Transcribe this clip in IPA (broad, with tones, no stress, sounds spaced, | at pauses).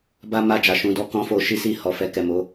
b a˦ m a˦˨ d͡ʒ a˧ ʃ ũ˧ d ɔ˦ k ɔ̃˦ f o˧ ʃ i˦ s i˦˨ h ɔ˨ f ɛ˧ k ɛ˨ m o˨˦